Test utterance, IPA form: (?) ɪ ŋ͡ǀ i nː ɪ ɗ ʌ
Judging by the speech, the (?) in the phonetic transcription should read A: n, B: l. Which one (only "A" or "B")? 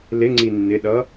B